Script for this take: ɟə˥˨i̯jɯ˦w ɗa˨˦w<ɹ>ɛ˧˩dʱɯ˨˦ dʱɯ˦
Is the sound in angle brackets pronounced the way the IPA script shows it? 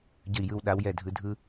no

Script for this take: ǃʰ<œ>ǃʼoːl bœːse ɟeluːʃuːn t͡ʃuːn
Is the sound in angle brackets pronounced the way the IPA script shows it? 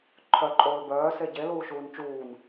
yes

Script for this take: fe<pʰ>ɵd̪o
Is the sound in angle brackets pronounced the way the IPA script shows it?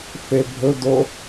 no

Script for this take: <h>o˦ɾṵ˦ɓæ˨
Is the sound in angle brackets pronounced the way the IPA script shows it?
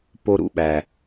no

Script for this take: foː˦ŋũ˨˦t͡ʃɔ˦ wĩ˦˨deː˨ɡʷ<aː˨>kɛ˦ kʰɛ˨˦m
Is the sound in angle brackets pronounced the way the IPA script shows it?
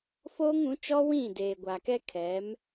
no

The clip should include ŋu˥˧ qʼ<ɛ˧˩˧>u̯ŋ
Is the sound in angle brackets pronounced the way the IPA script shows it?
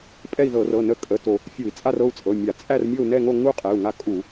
no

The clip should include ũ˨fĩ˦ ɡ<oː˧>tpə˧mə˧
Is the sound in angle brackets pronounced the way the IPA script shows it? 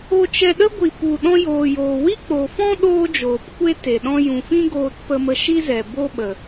yes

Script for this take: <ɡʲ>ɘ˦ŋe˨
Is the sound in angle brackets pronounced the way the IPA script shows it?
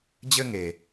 no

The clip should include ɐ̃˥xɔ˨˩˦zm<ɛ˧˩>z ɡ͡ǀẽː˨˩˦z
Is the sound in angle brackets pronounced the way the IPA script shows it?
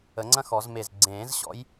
no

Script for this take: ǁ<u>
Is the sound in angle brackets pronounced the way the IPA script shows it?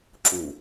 yes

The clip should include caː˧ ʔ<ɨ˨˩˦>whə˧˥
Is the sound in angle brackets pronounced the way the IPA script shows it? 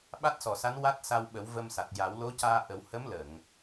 no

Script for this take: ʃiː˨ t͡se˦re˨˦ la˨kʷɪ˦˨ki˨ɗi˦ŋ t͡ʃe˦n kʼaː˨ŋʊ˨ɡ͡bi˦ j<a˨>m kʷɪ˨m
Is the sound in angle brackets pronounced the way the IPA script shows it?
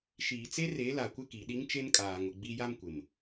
no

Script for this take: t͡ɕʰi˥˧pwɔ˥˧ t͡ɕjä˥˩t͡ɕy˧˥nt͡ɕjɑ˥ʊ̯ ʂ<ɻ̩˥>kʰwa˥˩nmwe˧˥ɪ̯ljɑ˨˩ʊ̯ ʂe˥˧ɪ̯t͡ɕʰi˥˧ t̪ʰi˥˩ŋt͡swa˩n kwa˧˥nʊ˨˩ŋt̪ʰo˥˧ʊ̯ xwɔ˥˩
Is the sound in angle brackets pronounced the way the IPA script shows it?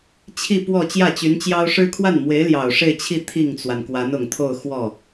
yes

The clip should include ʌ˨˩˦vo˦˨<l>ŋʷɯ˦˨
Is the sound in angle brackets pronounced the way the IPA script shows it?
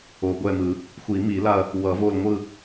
yes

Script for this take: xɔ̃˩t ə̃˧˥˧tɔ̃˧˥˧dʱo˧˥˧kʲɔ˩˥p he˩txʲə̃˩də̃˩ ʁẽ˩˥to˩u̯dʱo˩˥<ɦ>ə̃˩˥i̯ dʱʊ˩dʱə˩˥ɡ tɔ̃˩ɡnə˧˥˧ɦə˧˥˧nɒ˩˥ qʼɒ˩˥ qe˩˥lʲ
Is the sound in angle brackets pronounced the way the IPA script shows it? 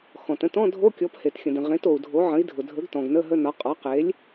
no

